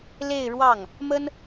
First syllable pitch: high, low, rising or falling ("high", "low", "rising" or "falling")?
falling